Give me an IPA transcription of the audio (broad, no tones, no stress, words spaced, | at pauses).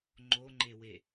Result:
ŋ͡ǃoŋ͡ǃewe